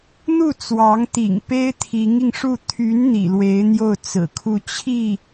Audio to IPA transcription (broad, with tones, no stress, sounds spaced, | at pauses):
n̪ u˥˩ t͡s w ɑ˧˥ ŋ t̪ ḭ˨˩ ŋ p e˥ ɪ̯ t̪ʰ i˧˥ ŋ i˧ ŋ ʂ u˥˩ t̪ʰ y˧˥ n n̪ ḭ˨˩ l w e˧˥ ɪ̯ n̪ j o˥˩ ʊ̯ t͡s ɹ̩˨˩ kʰ u˥˧ t͡ɕʰ i˥˩